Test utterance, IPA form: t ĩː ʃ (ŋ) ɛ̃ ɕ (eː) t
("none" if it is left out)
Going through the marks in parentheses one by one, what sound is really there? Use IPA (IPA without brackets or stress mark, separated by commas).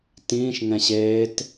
ŋ, eː